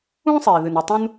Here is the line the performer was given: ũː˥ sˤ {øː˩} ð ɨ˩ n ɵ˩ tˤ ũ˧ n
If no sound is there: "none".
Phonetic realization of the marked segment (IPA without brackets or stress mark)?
eː˩